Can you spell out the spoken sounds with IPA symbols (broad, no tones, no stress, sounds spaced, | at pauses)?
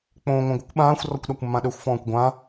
k͡p õː ŋʷ œ̃ ɡʷ ɪ kʷ ɓ ãː xʷ r ɔ kʷ ɗ a kʷ mː ã ɗ ø xʷ f ɔ̃ː kʷ ɡʷ ã